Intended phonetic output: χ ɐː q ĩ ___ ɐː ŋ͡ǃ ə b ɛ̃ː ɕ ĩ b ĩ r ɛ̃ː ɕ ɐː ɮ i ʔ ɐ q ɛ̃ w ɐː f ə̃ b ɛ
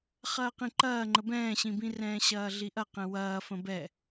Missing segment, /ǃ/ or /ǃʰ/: ǃ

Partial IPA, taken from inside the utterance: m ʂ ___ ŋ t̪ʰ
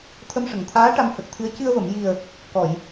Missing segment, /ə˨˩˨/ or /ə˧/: ə˨˩˨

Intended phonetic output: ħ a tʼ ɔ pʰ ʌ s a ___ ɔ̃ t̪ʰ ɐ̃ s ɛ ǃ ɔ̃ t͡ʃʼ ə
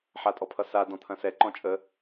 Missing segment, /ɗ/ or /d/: d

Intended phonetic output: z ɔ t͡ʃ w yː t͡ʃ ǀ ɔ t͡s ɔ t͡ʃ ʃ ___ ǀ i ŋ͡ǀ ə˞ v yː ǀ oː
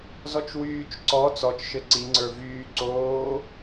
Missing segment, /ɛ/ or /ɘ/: ɘ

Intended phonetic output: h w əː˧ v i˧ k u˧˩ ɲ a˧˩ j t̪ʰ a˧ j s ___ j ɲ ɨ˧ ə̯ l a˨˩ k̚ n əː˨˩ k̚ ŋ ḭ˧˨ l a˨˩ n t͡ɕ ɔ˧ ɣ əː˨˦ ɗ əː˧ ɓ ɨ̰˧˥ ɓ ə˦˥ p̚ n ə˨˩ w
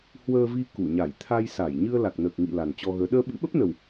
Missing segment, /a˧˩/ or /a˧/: a˧˩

